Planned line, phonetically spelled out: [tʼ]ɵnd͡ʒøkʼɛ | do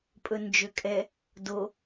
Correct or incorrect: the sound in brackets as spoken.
incorrect: pʼ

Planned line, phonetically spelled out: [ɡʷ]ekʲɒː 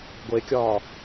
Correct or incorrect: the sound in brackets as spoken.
correct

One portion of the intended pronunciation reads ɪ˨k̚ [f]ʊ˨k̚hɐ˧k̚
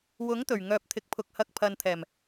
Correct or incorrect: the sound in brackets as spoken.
incorrect: pʰ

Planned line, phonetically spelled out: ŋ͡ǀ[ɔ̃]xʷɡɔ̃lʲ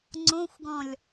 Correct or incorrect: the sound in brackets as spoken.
incorrect: õ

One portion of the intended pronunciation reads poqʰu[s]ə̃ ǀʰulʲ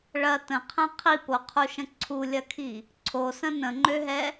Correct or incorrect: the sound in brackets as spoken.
incorrect: ʃ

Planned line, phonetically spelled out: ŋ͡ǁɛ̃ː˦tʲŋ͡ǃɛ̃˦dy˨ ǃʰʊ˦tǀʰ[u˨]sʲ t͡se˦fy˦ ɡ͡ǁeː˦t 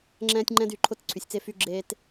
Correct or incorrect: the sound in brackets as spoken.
incorrect: y˨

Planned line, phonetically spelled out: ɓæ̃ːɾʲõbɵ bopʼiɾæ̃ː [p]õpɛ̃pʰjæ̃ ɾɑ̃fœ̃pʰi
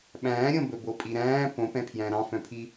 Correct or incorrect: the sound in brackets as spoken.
correct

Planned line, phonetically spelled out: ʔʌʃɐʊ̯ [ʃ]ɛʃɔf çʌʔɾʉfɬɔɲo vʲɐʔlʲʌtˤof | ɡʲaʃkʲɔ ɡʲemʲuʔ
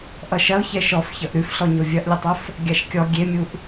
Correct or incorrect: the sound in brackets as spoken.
incorrect: ç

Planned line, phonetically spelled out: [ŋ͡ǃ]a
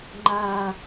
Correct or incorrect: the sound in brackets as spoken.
correct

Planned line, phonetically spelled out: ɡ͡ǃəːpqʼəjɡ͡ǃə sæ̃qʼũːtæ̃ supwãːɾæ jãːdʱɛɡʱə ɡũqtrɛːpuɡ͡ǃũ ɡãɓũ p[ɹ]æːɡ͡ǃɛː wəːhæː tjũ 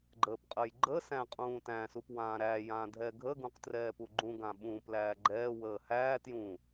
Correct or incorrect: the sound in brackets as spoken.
incorrect: l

